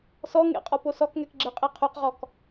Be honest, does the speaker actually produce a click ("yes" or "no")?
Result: yes